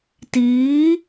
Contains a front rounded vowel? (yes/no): no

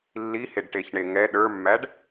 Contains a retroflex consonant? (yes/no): yes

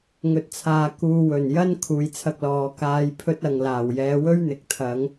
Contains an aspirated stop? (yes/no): yes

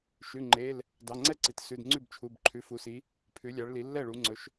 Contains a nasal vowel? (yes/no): no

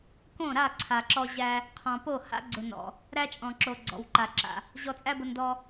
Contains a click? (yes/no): yes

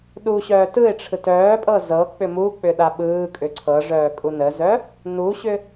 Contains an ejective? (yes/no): yes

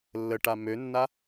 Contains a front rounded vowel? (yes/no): yes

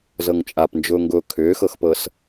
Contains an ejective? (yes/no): yes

